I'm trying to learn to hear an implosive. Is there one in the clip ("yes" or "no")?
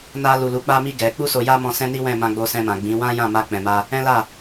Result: no